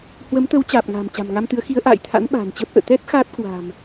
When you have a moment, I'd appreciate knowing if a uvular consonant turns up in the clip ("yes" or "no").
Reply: no